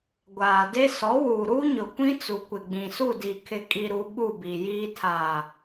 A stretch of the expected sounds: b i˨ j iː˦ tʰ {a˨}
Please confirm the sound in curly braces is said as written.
yes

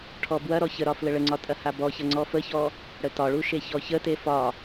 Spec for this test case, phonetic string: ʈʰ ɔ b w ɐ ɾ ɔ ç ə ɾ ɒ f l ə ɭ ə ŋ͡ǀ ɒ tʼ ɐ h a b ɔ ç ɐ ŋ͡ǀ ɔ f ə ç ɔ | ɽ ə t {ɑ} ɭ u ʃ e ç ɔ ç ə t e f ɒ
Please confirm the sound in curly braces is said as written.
no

